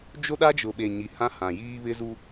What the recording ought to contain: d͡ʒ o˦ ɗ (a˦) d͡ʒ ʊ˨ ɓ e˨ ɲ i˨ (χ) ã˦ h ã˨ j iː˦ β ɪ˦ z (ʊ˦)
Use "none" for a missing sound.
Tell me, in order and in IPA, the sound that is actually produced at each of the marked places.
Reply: a˦, h, u˦

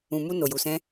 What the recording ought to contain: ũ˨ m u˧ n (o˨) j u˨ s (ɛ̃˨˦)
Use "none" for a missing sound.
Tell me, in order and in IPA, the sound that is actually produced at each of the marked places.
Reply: o˨, ɛ̃˧

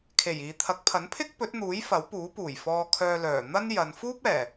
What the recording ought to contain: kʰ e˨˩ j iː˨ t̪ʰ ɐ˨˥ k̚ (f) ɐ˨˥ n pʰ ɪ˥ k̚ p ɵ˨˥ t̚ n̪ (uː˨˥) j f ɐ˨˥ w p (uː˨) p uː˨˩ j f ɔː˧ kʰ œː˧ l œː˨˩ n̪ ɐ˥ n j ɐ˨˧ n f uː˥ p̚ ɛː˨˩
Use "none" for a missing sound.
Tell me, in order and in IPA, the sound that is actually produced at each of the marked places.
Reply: pʰ, uː˨˥, uː˨˥

